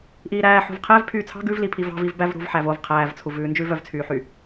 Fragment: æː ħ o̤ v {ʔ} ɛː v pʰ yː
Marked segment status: incorrect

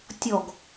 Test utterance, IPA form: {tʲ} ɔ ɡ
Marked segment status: correct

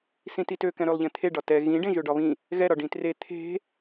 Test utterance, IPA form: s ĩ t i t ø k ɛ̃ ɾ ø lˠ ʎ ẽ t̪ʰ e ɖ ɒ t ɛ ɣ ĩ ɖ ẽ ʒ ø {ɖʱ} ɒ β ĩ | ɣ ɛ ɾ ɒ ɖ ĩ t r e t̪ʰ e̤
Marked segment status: incorrect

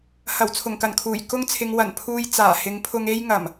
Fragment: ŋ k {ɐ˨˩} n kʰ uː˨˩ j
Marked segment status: correct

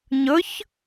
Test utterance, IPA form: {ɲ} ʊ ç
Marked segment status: correct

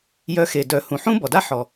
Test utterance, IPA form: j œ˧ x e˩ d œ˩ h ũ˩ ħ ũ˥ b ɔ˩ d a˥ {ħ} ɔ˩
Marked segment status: correct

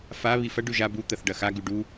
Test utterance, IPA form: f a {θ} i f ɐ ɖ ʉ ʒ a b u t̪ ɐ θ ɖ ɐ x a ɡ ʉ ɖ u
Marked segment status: incorrect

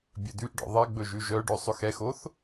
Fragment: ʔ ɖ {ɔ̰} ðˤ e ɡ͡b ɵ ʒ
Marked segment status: correct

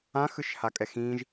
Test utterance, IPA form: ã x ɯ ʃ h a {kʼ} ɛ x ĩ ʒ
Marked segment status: correct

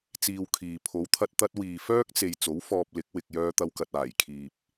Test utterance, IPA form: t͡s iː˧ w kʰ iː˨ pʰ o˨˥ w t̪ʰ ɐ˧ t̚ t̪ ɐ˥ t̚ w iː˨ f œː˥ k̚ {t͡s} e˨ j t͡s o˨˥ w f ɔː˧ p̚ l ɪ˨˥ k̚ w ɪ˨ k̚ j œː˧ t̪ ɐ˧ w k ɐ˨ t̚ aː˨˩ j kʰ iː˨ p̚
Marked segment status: correct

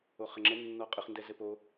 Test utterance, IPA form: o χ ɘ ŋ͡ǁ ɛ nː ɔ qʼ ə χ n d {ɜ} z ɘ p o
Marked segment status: incorrect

